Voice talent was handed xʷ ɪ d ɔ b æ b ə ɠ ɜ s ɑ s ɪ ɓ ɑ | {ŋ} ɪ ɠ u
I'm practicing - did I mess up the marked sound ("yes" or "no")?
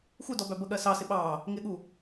no